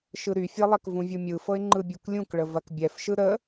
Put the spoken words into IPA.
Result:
ʃ ɯ ɾ y fʲ ɤ lˠ ɛ k v ũ vʲ u mʲ ɯ f ɤ ɪ̯ ŋ͡ǃ ɯ bʲ u k lʲ ũ k ɭ ə v ɐ k bʲ ɛ f ʃ ɯ ɾ ə

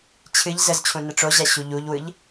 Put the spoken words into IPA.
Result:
t͡ɕʰ ɨ ʎ z ə z t͡ɕʰ ũ n ə ʈ͡ʂ o ʑ æ ɕ u ʎ u ʎ w ɯ ʎ

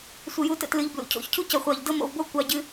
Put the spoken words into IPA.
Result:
sʷ ə˧˩ j u˧ t ə̰˧ t l ɨ˩˧ ʎ b l ṵ˩˧ cʰ o̰˩˧ ç cʰ u˥ c ɤ˧˩ χʷ ɑ˧˩ ʎ d ɤ˥ m o̰˧ v b o˥ kʷ ɑ˧ ɟ ɨ˧

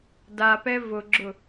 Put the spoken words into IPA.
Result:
d a p ɛ v ʊ ɡ͡ǁ ʊ

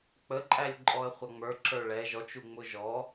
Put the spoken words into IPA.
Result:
k͡p ə ǃʼ æ lʲ ǃʼ ɔ ə̯ χʷ ɑ ŋ͡m ə˞ ǁ ə˞ ɭ ɛ ʒ ɔ t͡ʃ u ŋ͡m ʊ ʒ ɔ

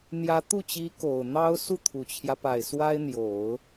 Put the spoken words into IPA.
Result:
n̪ j ä˧˥ t̪ u˥˩ t͡ɕ i˧˥ k o˨˩ ʊ̯ n̪ ɑ˥ ʊ̯ s u˥˩ t̪ʰ u˨˩ t͡ɕʰ j ä˦ p a˨˩ ɪ̯ s w a˥ ɪ̯ n̪ j o˨˩˦ ʊ̯

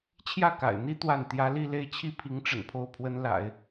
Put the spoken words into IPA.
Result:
t͡ɕʰ j ä˥˩ k a̰˨˩ ɪ̯ n̪ i˥ t̪ w a˥˩ n t̪ j ä˥ l i˥˧ l e˥˩ ɪ̯ t͡ɕʰ i˥ pʰ i˧˥ ŋ ʈ͡ʂ ə̰˨˩ n pʰ o˥˩ ʊ̯ pʰ w ə˥ n l a̰˨˩˦ ɪ̯

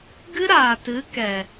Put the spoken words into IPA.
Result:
ɡ ɨ˦ ɾ aː˨ t ɨ˨˦ k ɛ˨

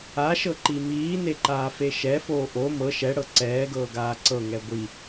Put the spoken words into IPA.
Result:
a ʃ ɤ ǃ i m iː n e ǃ aː f e ʃ ɛ f oː ʔ o m ɤ ʃ ɛ ɽ ɤ ǀ ɛː ɡ ɤː ɡ aː ǀ ɤ ŋ ɛ ɡʷ i

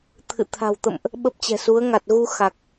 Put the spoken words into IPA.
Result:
t̪ʰ ɨ̰˧˨ t̪ʰ a̤˨˩ w t̪ ə̰˧˨ m ʔ | ɓ ə˦˥ p̚ t͡ɕ ɛ̤˨˩ s u˨˦ ə̯ ŋ a˨˩ t̚ ɣ u˧ x a˨˩ k̚

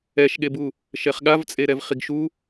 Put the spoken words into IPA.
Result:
ɛ ʃ ɠ e b u | ʃ ɛ χ ɠ a v t͡sʼ e ɾ ɛ v χ i ɡ ʃ u

